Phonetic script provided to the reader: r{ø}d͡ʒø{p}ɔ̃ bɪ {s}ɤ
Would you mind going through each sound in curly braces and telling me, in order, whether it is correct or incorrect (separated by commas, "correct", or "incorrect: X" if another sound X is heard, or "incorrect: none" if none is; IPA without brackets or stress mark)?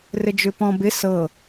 incorrect: ɘ, correct, correct